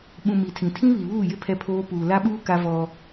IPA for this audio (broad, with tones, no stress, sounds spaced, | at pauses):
ɓ ũ˨ m i˨ tʰ ĩ˨ tʰ ĩ˦ β i˨ β uː˦˨ j ɪ˦ pʰ ɛ˦ pʰ oː˦ p uː˨ l a˦ ɓ uː˦ k a˦ v ɔ˦